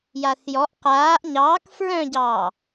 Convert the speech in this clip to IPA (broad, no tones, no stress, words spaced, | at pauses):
jaːθjɔʔ qaːʔ ɲɑːk fɹœ̃ɟɑː